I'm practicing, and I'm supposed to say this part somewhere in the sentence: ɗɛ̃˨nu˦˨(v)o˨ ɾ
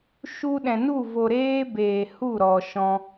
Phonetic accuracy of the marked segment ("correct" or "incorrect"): correct